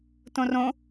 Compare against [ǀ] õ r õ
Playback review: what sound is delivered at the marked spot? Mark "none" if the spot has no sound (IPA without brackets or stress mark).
t